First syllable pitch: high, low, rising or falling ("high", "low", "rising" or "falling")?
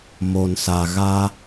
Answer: low